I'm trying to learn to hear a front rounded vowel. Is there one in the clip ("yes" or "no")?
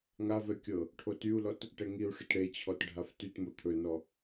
yes